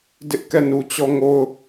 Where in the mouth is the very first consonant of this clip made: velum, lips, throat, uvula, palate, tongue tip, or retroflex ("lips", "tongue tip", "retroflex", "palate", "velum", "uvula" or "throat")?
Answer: tongue tip